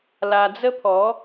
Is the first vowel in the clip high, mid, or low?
low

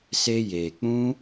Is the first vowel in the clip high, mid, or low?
mid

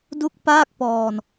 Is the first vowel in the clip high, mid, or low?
high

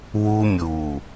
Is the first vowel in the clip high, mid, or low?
high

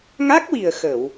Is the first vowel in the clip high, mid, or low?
low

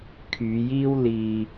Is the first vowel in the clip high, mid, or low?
high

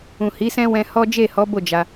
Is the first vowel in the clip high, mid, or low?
high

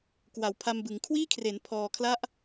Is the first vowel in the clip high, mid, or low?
low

